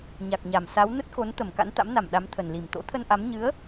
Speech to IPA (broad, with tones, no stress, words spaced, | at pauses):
ɲa˨˩k̚ɲa˨˩m sa˨˦w nə˦˥t̚ko˨˦nt̪ə˧˩m ka̰˧˥nt̪a̰˧˥mna˧˩m ɗa˨˦mt̪ʰə˨˩nli˧˩m t̪o̰˧˥t̪ʰə˧nʔa˨˦m ɲɨ˨˦ə̯